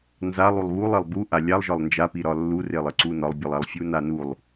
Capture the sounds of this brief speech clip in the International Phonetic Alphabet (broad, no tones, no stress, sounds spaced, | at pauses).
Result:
n z a lˠ u lˠ β u lˠ e lˠ b u ʔ a lʲ a lˠ ʒ ɒ lˠ n d͡ʒ a p i ɾ ɒ lː u r e lˠ ɘ ǀ u n ɒ lˠ bʲ ɯ lˠ a lˠ fʲ u n a n u lˠ